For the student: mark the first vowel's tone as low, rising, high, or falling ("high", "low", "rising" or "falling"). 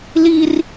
high